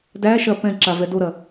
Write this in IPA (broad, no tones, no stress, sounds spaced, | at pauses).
d æ ʃ ɐ p ɛ̃ ǁ a v ɛ d o ɾ ɐ